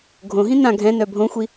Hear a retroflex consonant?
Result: no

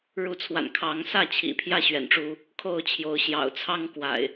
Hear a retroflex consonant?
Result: yes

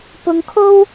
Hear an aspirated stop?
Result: yes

